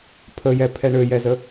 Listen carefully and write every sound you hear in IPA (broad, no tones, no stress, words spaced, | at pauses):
pʰəjɛpʰɛ ɳøjɛzə